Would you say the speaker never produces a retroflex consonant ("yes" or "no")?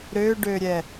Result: no